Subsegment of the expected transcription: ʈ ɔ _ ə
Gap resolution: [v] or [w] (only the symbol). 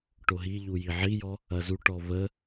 v